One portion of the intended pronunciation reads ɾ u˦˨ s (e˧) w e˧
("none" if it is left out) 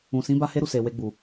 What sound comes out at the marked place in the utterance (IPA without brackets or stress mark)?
e˨